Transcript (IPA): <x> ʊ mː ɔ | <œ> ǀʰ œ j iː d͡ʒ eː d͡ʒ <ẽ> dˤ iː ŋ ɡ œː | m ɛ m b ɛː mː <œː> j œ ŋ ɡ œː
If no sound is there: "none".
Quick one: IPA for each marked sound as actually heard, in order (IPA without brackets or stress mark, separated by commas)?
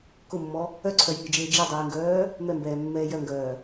k, œ, e, ɛː